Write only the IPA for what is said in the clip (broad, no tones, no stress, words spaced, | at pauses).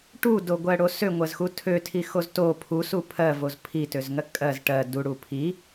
ʈudoɡʷɜɽo søŋʷɜzxu tʰøtʰixoz to pʰusu pʰɜvoz pʰitøzŋɜ kʼɜz ʈɜ duɽu pʰi